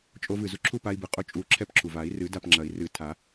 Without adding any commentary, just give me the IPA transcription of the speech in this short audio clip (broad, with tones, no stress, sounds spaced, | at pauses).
t͡ʃʼ o˧ v ɨ˨˩ z u˧ ǁʰ u˥˨ p a˧ i̯ b ɨ˨˩ qʼ o˧ t͡ʃʼ u˨˩˦ ǁʰ ɛ˥˨ p ǁʰ u˨˩ v a˨˩˦ i̯ r ɨ˨˩˦ d a˥˨ p ŋ͡ǁ ɐ˨˩˦ i̯ r ɨ˨˩˦ tʰ a˨˩˦